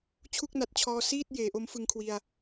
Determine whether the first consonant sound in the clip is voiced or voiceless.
voiceless